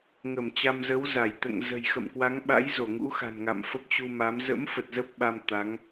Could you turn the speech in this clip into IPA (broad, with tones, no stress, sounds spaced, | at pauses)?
ŋ ə˧˩ m t͡ɕ a˧ m z ə˨˦ w z a˧˩ j t̪ ɛ̰˧˨ ŋ z ə̤˨˩ j x ə̰˧˨ m k w a˨˦ ŋ ɓ a̰˧˥ j z o˧˩ ŋ ṵ˧˥ x a̤˨˩ n ŋ a̰˧˨ m f ə˦˥ p̚ t͡ɕ u˧ m a˨˦ m z ə̰˧˥ m f ə˨˩ t̚ z ə˦˥ p̚ ɓ a˧ m t̪ a˨˦ ŋ